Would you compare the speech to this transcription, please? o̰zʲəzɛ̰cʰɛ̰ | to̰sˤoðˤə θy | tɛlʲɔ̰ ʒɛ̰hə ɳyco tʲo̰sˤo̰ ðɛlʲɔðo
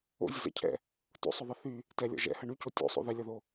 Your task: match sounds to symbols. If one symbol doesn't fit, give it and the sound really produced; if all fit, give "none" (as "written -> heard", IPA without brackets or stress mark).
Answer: none